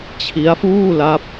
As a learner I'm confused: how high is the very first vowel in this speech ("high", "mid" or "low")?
high